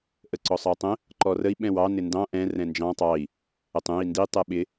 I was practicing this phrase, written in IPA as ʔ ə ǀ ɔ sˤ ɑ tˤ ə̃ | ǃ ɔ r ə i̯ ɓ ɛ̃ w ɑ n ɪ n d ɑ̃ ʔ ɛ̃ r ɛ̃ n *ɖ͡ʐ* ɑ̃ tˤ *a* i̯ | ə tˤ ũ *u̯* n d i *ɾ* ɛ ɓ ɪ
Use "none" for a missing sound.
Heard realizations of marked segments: d͡ʒ, ɑ, i̯, tˤ

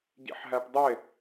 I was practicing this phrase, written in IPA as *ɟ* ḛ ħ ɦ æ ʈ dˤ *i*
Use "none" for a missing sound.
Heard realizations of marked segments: ɟ, e

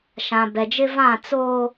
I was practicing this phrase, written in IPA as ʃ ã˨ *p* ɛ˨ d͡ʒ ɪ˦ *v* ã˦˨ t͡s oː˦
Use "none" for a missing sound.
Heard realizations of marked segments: b, v

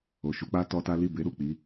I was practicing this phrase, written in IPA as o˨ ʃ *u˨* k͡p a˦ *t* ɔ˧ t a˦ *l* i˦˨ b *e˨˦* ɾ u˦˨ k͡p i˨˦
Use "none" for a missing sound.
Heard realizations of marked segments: u˨˦, t, l, e˨˦

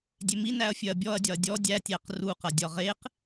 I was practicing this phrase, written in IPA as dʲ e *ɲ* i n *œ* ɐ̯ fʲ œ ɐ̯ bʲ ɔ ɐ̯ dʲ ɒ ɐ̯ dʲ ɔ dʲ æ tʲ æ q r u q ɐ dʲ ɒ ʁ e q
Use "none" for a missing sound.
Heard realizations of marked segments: m, æ

